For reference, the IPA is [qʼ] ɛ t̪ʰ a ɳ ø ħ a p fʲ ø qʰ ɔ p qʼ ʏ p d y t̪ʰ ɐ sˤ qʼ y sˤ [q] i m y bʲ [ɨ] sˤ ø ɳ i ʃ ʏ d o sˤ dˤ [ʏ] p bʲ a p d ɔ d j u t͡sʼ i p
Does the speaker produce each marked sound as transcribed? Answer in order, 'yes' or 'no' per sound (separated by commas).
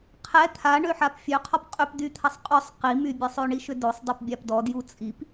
no, yes, no, no